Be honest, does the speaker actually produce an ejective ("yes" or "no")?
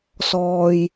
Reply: no